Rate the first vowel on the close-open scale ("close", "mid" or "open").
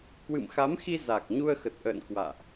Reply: close